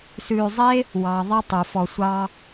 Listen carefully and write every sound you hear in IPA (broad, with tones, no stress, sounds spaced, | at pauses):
s ʉː˨ zˤ e˥ | w ɑ˩ ðˤ ɛ˦ tˤ u˩ f ɔ˨ sʷ ɑ˦